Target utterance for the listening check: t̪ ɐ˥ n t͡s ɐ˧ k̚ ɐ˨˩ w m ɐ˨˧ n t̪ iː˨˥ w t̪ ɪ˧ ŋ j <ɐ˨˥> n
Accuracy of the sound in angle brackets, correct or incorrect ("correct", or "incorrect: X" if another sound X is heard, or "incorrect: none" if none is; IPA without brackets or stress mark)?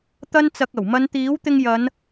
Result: incorrect: ɐ˨˧